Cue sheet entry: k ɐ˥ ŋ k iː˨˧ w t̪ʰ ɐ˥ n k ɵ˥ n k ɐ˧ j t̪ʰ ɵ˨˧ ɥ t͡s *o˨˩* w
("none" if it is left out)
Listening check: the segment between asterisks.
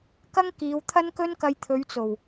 o˨˩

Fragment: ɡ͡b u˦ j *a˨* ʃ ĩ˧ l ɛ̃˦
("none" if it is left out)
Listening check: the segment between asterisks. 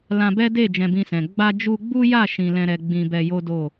a˦˨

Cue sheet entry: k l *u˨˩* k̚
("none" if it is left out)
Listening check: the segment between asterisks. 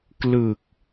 ɯ˨˩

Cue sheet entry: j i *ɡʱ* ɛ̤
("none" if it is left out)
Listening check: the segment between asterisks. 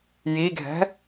ɡʱ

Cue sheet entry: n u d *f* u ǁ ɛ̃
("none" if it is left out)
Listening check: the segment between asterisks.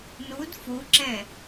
f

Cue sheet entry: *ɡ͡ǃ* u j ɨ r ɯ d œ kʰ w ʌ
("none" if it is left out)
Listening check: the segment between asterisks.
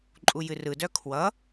ǃʼ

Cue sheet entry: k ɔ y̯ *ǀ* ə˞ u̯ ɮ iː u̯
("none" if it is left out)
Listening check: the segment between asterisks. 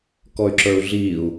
ǁ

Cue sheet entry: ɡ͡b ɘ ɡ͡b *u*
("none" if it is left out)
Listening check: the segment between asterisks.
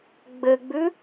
ʉ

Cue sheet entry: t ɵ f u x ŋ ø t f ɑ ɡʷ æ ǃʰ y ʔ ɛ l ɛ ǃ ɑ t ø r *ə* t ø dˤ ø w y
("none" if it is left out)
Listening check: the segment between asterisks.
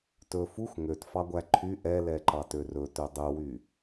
ɵ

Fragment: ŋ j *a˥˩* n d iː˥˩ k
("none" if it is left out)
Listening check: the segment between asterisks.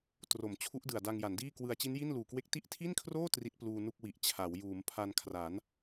a˩˦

